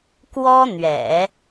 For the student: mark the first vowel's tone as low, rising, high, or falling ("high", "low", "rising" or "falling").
high